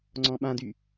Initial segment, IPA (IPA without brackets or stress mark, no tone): ŋ͡ǀ